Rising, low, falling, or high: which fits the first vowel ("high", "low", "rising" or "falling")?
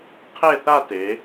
falling